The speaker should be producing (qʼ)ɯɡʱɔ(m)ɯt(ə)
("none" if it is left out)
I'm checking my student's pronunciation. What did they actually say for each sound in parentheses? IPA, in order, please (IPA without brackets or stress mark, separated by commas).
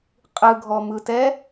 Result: qʼ, m, ɛ